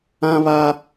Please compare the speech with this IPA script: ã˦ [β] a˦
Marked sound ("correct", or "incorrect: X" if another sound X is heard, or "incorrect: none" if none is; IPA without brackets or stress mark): correct